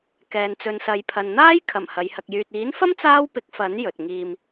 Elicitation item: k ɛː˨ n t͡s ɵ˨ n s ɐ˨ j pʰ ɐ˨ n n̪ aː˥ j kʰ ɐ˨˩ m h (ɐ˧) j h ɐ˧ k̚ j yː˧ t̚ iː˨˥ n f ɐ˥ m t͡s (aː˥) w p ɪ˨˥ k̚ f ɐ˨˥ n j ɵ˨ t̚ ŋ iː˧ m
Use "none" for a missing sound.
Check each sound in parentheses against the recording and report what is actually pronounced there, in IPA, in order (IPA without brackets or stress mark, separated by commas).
ɐ˨˧, aː˥